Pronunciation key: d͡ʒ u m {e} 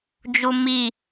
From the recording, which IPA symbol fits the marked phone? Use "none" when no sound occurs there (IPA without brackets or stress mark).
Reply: i